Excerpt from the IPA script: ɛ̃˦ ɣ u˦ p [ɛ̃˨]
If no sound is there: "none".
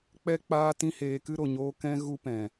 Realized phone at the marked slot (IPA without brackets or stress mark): ɛ̃˨